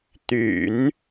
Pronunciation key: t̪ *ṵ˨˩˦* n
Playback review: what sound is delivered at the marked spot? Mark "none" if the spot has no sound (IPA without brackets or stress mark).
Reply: y̰˨˩˦